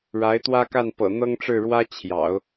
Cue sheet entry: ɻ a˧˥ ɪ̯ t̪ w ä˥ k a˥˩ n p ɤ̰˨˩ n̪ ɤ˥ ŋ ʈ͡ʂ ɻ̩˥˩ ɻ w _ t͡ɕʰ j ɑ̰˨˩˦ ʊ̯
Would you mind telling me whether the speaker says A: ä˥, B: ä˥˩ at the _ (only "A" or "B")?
A